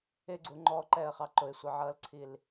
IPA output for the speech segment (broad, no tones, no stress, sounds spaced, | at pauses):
ɪ ɡ͡ǀ u ŋ͡ǃ ɔ ǃ ɛ ə̯ χ ɑ ǃ ʊ ɪ̯ sʷ ʌ ʕ ʌː l ǀʰ i l